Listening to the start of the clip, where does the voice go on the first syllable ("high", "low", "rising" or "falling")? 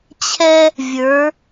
high